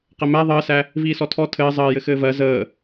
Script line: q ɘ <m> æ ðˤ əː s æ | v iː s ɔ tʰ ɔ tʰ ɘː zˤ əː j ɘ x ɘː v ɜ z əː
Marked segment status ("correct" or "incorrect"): correct